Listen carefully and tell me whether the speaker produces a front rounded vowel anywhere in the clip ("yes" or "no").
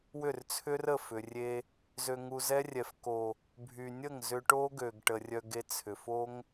yes